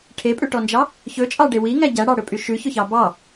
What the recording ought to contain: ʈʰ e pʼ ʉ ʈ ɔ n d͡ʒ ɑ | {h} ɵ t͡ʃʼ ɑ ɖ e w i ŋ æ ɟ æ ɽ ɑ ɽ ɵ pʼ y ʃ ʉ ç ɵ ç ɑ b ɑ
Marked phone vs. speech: incorrect: ç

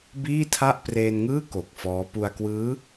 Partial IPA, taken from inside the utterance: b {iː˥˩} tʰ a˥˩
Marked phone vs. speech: correct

